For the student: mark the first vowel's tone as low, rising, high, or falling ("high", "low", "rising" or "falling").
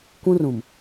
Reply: high